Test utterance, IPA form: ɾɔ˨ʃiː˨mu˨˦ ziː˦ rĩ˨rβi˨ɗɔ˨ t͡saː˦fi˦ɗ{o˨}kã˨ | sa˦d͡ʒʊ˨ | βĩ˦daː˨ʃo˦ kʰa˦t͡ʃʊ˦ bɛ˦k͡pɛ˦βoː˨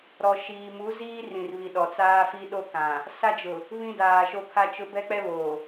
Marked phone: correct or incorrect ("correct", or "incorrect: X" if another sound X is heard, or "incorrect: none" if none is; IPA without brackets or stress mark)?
incorrect: o˦